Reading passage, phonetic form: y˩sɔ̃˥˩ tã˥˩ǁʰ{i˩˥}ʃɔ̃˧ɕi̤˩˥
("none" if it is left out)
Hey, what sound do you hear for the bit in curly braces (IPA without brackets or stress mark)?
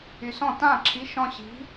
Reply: i˩˥